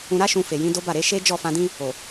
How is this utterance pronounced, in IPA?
ũ˧ ɾ a˦ ʃ ũ˧ f e˨ j ĩ˨˦ d o˦ b a˦˨ ɾ e˧ ʃ e˦ d͡ʒ ɔ˦˨ f ã˧ d ĩ˦ | o˨

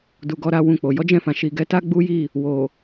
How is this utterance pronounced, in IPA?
d u˨ ɡ ɔ˧ ɾ a˧ w ũ˧ k͡p o˨ j ɔ˨˦ d͡ʒ ɛ̃˦˨ f ã˨ ʃ i˨ ɡ ɛ˨˦ t a˦ ɡ͡b u˦ j i˦˨ | w o˨

